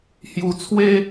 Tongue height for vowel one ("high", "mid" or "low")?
high